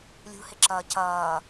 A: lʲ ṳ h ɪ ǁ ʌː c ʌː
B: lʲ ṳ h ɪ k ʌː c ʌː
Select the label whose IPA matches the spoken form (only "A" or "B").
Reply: A